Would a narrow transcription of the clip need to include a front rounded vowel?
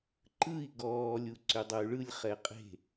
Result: yes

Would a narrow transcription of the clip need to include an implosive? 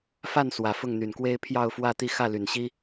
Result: no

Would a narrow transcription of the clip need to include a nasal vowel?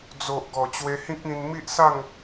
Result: yes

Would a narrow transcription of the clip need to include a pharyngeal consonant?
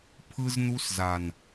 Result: no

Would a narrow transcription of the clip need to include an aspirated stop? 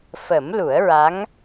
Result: no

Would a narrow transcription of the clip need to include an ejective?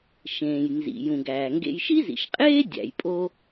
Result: yes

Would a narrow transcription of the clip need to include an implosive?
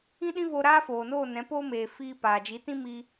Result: yes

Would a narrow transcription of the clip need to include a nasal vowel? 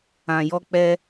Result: yes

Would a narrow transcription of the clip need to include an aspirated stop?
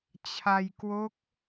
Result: yes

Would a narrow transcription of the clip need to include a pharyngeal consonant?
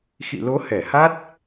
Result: no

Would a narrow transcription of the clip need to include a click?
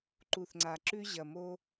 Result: yes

